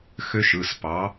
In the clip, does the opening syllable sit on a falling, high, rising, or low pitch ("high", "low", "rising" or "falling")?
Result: high